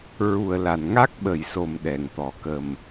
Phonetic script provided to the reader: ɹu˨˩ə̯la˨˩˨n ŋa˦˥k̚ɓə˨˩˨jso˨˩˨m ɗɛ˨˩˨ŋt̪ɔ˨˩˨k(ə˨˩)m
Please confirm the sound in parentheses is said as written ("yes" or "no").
yes